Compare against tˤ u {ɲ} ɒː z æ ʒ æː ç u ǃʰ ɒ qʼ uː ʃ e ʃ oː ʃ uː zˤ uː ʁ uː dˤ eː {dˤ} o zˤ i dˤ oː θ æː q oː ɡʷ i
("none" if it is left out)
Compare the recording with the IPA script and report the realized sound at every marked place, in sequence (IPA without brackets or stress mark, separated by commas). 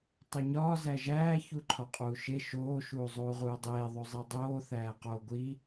ɲ, ðˤ